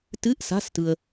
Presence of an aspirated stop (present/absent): absent